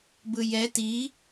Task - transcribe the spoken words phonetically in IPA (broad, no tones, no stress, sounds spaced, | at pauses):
b ɯ j ɛ t i